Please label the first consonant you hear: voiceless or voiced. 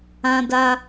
voiced